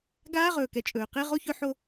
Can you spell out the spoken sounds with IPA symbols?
ɡ aː˦ ʁ ɵː˨ k ɛ˨ t͡ʃʼ ɵː˨ q e˦ ʁ o˦ ç ɵ˦ ħ o˦

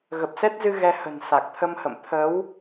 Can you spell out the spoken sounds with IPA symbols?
ɣ ə˨˩ p̚ s ɛ˦˥ t̚ z ɨ˧ ɣ ɛ˧ h ə̤˨˩ n s a˨˩ k̚ t̪ʰ ə˧ m h ə̰˧˨ m t̪ʰ ə˨˦ w

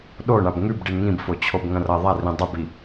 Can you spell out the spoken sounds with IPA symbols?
ɗ o ɳ a b ŋ ʉ b ɖ i ɳ ŋ ĩ b f o t͡ɕʰ o b ŋ ɐ̃ r ɐ ðˤ a r ĩ dˤ ɨ b i

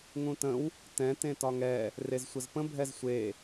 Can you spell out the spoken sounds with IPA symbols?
ŋ ũ t ə̃ w | t ɛ̃ t ẽ t ɒ ŋ ɛ | r e z sʷ ə z p ə̃ bʱ ɛ z sʷ e

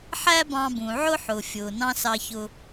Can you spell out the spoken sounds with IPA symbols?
ħ æ˧ b ɑ̃˧ b ũ˩ ʕ ʊ˥ ħ ʊ˩ fʲ ʊː˩ n ɑ̃˥ s ɑ˧ ç ʊ˧

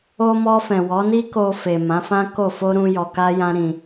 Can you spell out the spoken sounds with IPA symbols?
o˧ m ɔ˧ f ɛ̃˨ w ɔ˨˦ n i˦ k o˧ f e˨ m ã˨˦ f ã˦ k o˦˨ f o˧ ɾ ũ˧ j ɔ˧ k a˦ j ã˦ ɾ ĩ˧

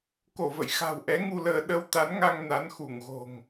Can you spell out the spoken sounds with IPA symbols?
k o˧˩ v ə̰˧˨ j x a̤˨˩ w ʔ ɛ˨˦ ŋ u˧ l əː˧ ɗ ə˧ w t̪ a˨˦ n ŋ a˧ ŋ n a˨˦ n x u˧˩ ŋ ɣ o̤˨˩ ŋ

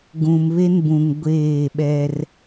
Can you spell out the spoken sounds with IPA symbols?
ɡ ũ˨ m β e˦ n b ũ˨ ŋ ɡʷ eː˦˨ ɓ ɛ˦ r

